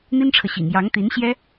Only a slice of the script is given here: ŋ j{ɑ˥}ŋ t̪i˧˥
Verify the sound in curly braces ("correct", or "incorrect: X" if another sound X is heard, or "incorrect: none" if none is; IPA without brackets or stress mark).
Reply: incorrect: ɑ˧˥